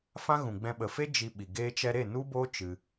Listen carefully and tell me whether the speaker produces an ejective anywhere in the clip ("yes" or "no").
no